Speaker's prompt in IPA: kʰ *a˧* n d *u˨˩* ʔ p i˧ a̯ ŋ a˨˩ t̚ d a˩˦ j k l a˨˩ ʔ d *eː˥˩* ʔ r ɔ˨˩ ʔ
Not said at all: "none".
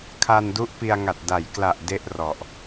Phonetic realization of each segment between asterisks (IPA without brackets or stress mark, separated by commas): a˧, u˦˥, e˥˩